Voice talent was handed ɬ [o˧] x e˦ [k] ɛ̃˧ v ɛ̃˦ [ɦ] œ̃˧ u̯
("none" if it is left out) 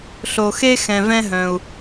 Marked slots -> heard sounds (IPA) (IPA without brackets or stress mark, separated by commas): o˧, x, ɦ